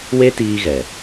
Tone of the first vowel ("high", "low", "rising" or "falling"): high